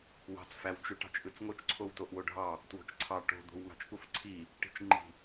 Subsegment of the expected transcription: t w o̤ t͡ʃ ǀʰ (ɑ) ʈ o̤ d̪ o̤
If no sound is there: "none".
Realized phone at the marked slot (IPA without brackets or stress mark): ɑ